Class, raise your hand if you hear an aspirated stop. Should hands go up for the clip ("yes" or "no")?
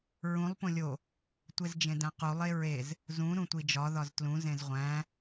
no